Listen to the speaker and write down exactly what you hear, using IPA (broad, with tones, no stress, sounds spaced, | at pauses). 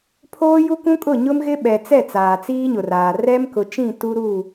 pʰ oː˦ j u˦ k ũ˦ kʼ ʊ˦˨ ɲ ʊ˦ m ɣ ɪ˦ ɓ ɛ˨ t͡s ɛ˦˨ t͡s aː˨ t͡s iː˦ ɲ ʊ˨ r aː˨ r ɛ˦ m k ʊ˨ t͡ʃ ĩ˦˨ t u˦ ɾ uː˦˨